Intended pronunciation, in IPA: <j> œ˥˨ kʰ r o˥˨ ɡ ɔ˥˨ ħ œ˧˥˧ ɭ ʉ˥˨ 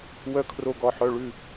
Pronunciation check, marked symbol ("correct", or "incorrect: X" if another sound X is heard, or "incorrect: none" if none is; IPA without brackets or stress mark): incorrect: w